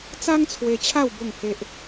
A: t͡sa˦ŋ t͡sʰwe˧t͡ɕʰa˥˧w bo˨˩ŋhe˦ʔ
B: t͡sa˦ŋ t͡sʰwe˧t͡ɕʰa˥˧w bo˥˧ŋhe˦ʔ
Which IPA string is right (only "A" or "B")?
B